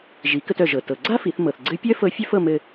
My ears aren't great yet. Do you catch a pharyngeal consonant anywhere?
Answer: no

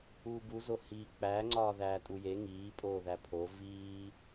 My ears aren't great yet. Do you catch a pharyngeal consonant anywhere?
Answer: no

